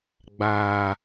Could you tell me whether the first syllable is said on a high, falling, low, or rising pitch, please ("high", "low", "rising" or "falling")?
low